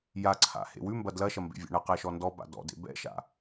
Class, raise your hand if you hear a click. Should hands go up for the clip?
yes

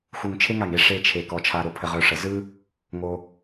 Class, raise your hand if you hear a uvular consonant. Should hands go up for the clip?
yes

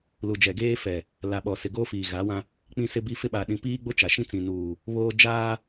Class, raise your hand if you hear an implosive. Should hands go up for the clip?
yes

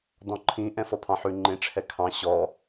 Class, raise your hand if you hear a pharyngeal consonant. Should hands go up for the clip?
yes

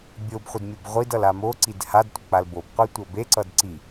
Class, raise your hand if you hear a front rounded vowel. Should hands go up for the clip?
no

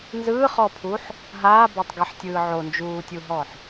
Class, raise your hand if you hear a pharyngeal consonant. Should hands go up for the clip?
yes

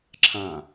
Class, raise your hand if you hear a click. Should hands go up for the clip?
yes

